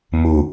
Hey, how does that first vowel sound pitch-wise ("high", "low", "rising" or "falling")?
low